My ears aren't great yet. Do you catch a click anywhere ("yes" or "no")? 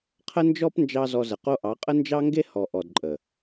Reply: yes